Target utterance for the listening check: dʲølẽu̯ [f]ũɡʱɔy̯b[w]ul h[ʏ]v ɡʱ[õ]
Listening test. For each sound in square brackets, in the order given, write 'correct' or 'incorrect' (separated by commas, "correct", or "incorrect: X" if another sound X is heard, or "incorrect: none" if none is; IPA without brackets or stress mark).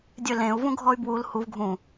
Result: incorrect: v, correct, incorrect: u, incorrect: ũ